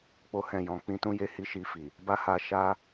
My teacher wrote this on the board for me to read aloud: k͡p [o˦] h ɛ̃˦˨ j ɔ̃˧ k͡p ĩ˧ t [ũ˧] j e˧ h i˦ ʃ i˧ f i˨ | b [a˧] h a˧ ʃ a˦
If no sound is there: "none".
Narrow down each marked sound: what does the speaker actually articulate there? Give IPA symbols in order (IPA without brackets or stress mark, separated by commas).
o˦, ũ˦, a˦